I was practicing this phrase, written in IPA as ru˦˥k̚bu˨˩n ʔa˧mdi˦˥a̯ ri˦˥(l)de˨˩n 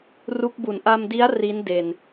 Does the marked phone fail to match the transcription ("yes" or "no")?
yes